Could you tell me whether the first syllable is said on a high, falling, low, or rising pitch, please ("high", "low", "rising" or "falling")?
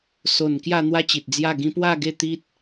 low